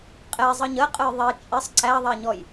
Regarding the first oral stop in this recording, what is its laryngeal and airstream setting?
ejective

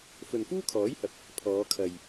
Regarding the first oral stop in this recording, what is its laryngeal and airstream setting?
aspirated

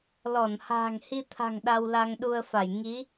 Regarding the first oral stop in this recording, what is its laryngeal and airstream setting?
aspirated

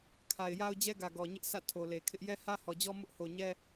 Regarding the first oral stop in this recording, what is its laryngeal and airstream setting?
aspirated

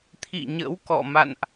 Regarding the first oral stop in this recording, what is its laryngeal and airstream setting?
aspirated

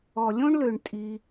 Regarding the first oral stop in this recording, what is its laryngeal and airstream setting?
ejective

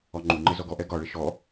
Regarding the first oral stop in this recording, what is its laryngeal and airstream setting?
click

